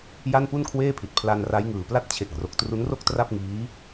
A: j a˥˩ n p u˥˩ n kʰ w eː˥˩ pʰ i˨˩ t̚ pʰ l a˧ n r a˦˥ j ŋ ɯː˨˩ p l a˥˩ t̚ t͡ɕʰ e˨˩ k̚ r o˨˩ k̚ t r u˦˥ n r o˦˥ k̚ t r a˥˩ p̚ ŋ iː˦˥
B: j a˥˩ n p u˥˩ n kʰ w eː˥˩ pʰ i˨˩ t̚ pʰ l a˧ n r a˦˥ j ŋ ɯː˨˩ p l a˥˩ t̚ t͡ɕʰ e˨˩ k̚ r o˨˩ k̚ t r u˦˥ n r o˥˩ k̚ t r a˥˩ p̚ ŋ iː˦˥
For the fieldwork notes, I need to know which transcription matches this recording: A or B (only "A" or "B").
B